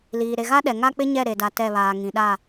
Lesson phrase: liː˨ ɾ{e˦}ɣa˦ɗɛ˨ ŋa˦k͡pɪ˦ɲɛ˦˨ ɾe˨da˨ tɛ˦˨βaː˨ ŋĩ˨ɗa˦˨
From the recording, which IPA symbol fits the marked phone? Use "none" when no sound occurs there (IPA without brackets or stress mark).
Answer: e˨